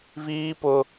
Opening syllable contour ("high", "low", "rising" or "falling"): high